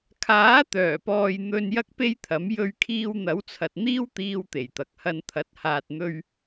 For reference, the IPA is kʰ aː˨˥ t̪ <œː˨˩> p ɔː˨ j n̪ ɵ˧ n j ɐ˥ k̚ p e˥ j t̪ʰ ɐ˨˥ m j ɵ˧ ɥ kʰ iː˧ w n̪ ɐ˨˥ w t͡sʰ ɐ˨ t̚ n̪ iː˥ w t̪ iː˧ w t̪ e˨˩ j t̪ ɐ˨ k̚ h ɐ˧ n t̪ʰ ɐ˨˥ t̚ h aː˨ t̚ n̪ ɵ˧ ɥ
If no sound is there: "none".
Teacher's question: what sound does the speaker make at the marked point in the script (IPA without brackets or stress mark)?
œː˨˩